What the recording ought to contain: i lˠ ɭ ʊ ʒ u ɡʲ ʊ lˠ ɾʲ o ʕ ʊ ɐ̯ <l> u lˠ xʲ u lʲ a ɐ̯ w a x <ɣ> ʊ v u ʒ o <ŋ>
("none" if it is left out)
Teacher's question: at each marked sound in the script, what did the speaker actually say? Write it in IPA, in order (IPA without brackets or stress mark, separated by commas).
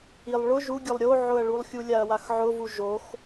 ɭ, ʕ, x